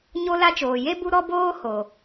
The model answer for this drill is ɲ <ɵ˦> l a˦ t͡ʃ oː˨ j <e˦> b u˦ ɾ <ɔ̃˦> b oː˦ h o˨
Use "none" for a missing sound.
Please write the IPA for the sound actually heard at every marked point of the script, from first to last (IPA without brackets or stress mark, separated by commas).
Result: o˦, e˦, ɔ˦